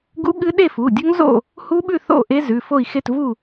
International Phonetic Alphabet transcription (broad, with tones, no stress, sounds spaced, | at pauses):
ɡ ṵ˦˥ ɠ ɨ˦˥ ɗ e˥˨ f u˩˧˩ dʲ ɵ˦˥ ŋ z o̰˥˨ | h u˦˥ ɓ ʉ˥˨ θ o̰˥˨ ʔ e˦˥ z ʉ˩˧˩ f o˥˨ i̯ x e˥˨ t v u˥˨